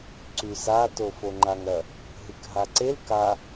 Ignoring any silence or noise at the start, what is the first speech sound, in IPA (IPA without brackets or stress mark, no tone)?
ǀ